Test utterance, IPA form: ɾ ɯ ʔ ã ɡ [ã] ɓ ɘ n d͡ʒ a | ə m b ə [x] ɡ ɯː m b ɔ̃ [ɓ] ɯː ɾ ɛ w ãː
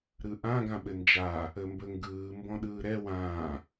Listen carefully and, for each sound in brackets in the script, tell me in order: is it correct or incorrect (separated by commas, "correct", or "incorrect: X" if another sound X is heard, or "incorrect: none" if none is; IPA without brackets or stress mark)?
correct, incorrect: ŋ, incorrect: ɗ